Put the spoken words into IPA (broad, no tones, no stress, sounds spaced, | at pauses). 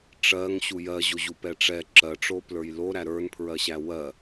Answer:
ʈ͡ʂ ɜ ŋ ɕ u j ɜ ʑ o ʑ u p ɛ ʈ͡ʂ ɛ ǁ ɜ ʈ͡ʂ o p l ə˞ j l o ɾ æ ɾ ə˞ n pʰ ɹ ɜ ɕ æ w ɜ